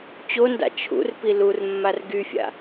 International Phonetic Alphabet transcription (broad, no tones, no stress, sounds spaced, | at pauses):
t͡ɕ o n d a̰ t͡ʃʰ ṵ r p i l u r mː a r ɡ y fʲ a̰